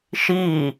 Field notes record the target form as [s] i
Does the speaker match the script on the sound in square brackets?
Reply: no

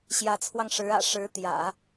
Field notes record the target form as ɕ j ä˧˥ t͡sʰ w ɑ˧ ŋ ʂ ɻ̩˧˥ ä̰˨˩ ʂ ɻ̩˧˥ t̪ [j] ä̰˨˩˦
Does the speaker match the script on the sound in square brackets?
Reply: yes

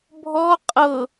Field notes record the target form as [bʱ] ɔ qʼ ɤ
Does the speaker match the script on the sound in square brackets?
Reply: yes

